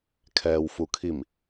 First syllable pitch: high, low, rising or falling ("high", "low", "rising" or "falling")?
low